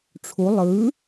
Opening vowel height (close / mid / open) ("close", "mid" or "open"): close